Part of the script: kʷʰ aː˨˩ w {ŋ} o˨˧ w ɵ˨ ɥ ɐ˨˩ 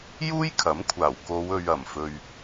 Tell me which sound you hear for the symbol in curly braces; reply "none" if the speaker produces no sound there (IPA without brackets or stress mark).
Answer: k